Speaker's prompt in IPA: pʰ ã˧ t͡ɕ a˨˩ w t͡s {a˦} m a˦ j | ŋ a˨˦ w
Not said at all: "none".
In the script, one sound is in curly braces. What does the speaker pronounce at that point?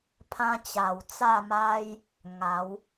a˥˧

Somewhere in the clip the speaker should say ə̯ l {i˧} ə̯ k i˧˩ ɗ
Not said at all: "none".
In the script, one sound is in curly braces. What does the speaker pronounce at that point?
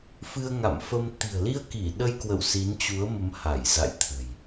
i˧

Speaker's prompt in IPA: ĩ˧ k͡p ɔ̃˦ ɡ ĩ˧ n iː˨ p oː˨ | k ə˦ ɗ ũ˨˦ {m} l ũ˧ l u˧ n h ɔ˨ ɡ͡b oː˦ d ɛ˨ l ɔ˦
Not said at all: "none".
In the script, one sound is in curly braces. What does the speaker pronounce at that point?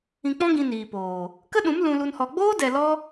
m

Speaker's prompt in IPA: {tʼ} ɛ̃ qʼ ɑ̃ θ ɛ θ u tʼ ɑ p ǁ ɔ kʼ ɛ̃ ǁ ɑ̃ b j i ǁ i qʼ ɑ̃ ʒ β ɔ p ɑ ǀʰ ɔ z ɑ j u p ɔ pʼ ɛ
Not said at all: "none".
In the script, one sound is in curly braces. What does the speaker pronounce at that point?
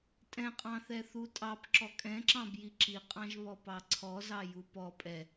tʼ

